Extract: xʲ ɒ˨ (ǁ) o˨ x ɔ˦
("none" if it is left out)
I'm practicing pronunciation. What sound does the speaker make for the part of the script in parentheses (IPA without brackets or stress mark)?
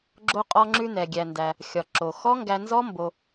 ǁ